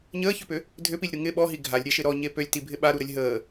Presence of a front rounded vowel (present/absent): present